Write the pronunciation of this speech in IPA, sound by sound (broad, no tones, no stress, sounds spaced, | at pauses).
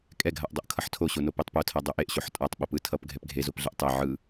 kʼ ɛ ɡʱ a ʔ dˤ o ʔ kʰ ʌ ħ tʰ o ɕ o n o p e tˤ p o tʰ a dˤ o ʔ e ʔ ɕ o ħ tʼ a tˤ ɓ o p ɯ tʰ ʌ p ɡʱ ɛ p ɡʱ e z o p ɮ ɛ ʔ tˤ ɛ ʕ ɯ